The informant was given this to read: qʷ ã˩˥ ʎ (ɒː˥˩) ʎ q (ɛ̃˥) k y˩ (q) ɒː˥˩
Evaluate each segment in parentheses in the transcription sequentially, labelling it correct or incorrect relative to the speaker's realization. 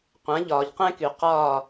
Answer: incorrect: ɒː˩, correct, correct

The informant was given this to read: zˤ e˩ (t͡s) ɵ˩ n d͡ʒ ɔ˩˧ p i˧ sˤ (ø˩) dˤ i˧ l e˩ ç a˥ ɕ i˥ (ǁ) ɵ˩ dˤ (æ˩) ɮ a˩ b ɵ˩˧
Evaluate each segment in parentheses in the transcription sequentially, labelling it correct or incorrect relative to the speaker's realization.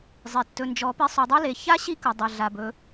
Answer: incorrect: tː, incorrect: ɵ˩, incorrect: k, incorrect: a˩

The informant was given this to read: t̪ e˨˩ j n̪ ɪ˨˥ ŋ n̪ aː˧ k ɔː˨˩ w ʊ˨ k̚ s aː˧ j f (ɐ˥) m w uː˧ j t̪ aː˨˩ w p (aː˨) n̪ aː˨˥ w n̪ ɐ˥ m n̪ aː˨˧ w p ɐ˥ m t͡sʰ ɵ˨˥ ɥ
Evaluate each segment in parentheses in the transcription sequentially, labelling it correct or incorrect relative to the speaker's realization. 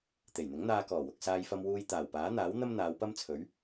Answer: incorrect: ɐ˧, incorrect: aː˨˥

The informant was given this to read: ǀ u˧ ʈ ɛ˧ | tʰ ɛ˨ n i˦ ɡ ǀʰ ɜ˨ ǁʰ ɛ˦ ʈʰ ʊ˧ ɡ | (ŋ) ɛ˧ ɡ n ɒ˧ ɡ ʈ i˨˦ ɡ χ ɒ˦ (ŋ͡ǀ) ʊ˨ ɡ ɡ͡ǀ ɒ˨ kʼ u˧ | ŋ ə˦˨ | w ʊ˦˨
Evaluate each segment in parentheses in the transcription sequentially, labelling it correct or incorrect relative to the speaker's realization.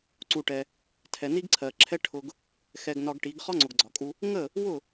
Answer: incorrect: x, correct

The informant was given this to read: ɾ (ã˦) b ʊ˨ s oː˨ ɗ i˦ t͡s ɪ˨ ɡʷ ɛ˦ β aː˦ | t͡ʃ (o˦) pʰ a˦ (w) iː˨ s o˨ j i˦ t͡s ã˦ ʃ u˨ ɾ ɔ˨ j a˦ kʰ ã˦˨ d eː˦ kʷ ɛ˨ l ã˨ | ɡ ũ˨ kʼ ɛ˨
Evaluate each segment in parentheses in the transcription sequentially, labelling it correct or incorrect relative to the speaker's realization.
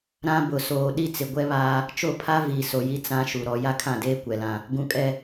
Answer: correct, incorrect: o˦˨, incorrect: v

